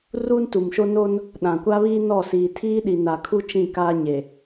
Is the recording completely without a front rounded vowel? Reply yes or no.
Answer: yes